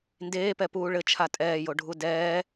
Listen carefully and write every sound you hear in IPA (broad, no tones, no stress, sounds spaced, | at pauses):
n d eː p ɛ p uː ɭ ɘ t͡ʃʰ a tʼ ɛː j o ɖʱ u d ɛː